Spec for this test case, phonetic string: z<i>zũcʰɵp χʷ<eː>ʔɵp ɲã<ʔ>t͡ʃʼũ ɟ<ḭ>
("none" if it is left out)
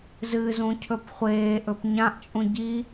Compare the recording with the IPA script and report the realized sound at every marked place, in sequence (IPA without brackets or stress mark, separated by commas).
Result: ɨ, eː, ʔ, i